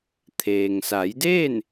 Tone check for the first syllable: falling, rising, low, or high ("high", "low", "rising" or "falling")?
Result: low